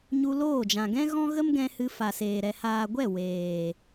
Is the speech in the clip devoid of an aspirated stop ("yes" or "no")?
yes